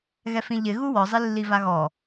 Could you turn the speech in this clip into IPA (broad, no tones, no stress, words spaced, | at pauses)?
ɣɛfĩʎɪ ɣuwɔ zˤɪlːivaɣɔ